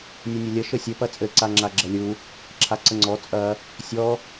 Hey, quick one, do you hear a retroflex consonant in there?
no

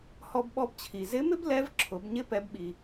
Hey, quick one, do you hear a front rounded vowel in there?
no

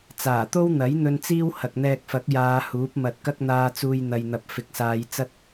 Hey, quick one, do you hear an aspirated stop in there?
no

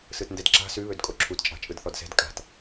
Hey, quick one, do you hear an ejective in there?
yes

